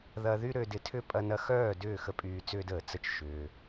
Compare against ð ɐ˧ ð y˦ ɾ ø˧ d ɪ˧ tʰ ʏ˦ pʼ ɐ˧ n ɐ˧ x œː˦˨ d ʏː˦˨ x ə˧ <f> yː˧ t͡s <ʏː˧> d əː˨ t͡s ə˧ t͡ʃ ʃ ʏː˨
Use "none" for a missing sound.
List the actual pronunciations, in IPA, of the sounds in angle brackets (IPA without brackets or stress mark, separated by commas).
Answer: pʼ, ʏː˦